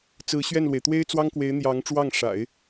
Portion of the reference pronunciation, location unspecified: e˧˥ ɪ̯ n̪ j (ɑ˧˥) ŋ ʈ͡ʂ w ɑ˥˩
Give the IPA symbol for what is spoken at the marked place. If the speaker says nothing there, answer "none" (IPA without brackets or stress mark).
ɑ˧˥